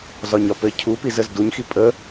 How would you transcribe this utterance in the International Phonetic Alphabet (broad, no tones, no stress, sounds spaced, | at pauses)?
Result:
z ɒ ɲ ɒ p ɘ cʰ u p i z ə z d u ɲ x i pʼ ə